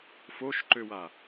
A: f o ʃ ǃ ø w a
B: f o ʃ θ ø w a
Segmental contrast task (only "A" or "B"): A